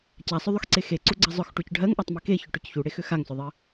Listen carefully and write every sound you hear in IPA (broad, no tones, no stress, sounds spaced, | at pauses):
c a sˤ ʏ ðˤ ʏ x ǀ e x e ǀ u ɡ͡ǀ ɜ zˤ ʊ x ʈ u c ɖʱ ɜ ŋ ʔ ɜ tˤ m e k e ç ʏ ʈ ʊ c ç u ɽ e x ʏ x a ŋ s ʊ ðˤ ɜ